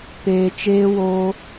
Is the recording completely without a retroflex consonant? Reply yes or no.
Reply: yes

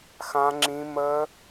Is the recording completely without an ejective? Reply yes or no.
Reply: yes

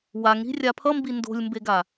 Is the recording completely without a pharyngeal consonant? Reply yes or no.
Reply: yes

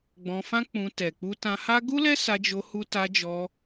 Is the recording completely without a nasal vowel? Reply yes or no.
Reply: no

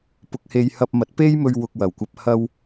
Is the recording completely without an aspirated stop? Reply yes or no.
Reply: yes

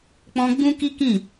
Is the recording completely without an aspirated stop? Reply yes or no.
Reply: yes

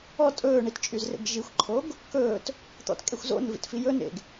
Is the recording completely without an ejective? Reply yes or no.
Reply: no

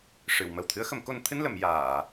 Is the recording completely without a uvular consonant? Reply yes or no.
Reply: yes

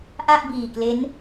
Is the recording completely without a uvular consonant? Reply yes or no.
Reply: yes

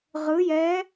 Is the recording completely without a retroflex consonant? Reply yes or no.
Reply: yes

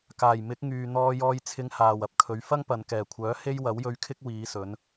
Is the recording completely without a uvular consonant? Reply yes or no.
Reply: yes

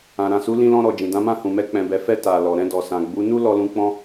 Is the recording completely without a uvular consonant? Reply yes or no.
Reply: yes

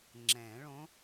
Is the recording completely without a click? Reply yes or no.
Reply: no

